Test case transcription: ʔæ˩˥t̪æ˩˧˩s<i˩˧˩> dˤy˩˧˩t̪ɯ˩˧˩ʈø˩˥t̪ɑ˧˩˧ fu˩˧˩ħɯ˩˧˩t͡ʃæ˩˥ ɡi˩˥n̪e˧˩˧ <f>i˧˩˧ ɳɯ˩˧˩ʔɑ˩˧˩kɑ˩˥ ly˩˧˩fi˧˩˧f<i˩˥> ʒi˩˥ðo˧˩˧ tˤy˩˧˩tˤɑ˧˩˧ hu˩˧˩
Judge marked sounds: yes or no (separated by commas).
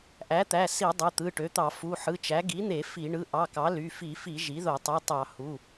no, yes, no